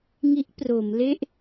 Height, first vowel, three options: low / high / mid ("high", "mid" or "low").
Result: high